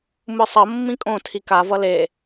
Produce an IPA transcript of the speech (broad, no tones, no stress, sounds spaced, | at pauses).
m ɯ sˤ ʌ mː ĩ kʼ õ tʰ i k a v ʌ l e